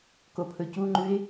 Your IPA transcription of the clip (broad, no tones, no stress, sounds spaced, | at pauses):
k o pʰ ɵ c u ŋ͡ǃ ʉ ɪ̯